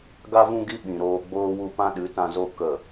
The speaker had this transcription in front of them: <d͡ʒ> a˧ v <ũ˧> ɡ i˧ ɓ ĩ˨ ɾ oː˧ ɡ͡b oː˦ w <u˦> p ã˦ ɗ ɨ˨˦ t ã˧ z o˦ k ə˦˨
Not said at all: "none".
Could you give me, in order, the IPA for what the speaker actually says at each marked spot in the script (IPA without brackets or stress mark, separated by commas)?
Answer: ɡ, ũ˧, u˦